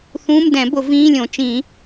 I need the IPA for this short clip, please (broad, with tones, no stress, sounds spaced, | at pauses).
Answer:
θ ũː˧˥˧ m d ɛ̃˨˩˦ b ʊ˨˩˦ v ĩː˧˥˧ lʲ õ˨˩˦ t͡ʃ ĩ˨˩˦